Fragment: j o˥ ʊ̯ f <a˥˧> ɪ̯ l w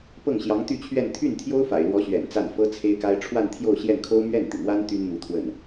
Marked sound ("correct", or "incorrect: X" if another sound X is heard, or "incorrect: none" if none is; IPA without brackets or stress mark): incorrect: a̰˨˩